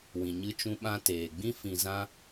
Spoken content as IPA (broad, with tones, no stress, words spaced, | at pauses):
wĩ˨ɲɨ˧t͡ʃũ˧ ɓã˧ teː˨ɡ͡bĩ˦ fĩ˧zã˦